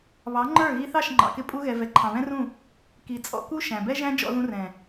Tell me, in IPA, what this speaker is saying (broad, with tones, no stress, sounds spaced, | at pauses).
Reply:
β ɑ˨˦ ŋ͡ǃ ə˞˦˨ ɣ i˧ θ ɑ˦˨ ʃ ŋ͡ǃ ɑ̰˨ k ɪ˧ pʼ u˦ ɣ ɛ˧ v ɛ˨ ǃʰ ɑ̃˨ β ɛ̃˦ r ũ˦˨ | k i˨ t͡sʼ ɔ̰˧ k u˦ ʃ æ̃˨ b ɛ˦ ʒ æ̃˦ d͡ʒ ɔ̰˧ ð ũ˧ r ɛ̃˨